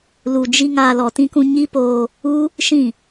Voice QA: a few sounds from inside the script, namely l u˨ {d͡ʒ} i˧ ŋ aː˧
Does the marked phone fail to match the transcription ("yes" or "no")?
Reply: no